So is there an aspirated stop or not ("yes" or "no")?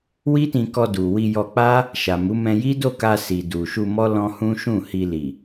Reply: no